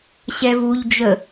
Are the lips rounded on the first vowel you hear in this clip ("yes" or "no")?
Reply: no